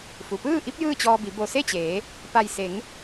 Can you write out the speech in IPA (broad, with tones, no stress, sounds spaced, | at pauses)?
f u˩ p ɯː˥˨ ʔ i˧˥ p̚ j ɯː˥˨ t͡ɕ ɔː˧ b i˩˧ b o˧˩ s e˥˨ t͡ɕ eː˩˧ | p a˧˩ j s e˩˧ ŋ